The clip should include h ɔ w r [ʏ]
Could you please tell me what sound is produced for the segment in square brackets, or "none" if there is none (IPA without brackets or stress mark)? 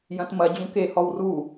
u